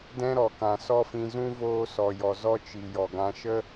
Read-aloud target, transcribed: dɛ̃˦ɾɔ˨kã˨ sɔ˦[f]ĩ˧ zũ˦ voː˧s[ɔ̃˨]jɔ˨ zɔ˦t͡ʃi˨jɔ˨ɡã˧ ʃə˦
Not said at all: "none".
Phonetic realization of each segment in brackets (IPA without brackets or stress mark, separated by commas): f, ɔ˨